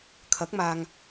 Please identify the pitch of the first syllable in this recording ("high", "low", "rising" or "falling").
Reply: rising